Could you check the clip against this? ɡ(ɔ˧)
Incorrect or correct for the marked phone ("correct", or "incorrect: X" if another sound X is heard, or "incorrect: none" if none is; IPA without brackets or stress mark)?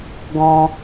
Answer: incorrect: ɔ̃˧